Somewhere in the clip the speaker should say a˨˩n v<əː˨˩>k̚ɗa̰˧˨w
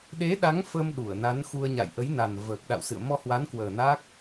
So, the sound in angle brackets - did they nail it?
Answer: yes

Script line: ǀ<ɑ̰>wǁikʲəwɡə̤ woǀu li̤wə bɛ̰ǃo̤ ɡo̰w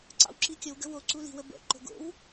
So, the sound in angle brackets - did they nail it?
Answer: yes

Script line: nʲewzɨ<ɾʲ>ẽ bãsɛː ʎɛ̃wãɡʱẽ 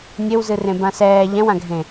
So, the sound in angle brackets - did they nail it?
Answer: no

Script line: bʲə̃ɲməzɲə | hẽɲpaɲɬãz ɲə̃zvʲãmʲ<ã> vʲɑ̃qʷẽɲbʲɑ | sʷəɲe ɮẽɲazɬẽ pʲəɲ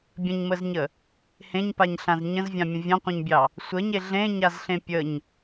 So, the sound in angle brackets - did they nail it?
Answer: no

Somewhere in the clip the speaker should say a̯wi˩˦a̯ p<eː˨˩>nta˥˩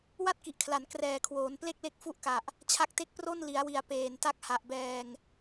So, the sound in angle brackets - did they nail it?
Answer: yes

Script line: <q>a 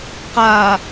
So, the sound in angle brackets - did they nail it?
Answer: yes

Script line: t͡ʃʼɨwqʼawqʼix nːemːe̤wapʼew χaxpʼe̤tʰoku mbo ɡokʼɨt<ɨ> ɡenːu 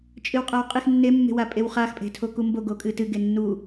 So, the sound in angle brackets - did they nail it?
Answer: yes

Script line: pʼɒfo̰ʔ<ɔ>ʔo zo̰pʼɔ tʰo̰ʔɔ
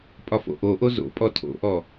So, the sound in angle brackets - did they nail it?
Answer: no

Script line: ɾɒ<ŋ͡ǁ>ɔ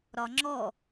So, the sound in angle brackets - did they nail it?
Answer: yes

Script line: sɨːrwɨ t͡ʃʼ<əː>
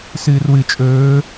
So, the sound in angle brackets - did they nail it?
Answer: no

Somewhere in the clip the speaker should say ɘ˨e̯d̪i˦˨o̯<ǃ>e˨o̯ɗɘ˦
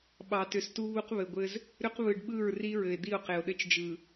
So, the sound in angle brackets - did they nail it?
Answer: no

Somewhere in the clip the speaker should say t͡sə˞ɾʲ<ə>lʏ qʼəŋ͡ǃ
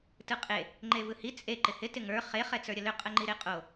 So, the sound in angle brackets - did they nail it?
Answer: yes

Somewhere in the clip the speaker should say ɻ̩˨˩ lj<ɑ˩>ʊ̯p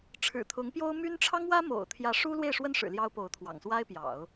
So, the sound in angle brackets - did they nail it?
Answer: no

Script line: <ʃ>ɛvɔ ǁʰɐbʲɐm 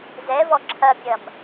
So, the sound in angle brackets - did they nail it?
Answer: no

